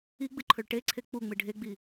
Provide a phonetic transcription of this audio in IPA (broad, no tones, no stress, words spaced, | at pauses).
iɡ͡bɨǃʰɵɭ ʈeǀʰe k͡puŋ͡mɨ ɖʱeɡ͡bi